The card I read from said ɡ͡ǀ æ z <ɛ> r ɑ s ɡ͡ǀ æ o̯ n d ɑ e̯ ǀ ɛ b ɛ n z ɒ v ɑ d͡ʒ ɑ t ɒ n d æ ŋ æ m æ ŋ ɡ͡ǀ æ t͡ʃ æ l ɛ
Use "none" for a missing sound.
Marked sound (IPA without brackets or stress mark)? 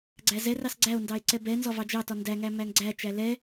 ɛ